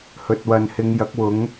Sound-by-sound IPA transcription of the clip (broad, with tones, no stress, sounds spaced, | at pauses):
h ɵ˨ t̚ w ɐ˨ n h ɪ˨˧ ŋ j ɐ˨˥ k̚ w ʊ˨˥ ŋ